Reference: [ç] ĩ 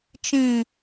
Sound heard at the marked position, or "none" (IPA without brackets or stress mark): t͡ʃ